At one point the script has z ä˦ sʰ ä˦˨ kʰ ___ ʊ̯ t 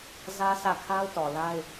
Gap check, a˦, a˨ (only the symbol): a˦